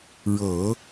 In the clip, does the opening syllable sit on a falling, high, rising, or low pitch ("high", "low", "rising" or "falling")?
low